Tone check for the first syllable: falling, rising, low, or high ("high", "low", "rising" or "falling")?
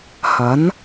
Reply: rising